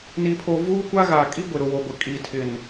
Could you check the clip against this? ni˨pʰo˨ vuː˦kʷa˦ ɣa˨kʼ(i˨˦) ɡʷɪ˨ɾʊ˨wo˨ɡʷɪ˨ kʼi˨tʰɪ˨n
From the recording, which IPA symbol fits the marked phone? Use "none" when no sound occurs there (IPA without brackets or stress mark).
i˦